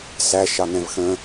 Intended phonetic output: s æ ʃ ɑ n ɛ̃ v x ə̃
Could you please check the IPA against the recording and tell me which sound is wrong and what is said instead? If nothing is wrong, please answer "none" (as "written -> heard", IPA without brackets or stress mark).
none